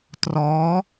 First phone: t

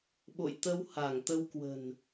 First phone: ɓ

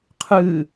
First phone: qʰ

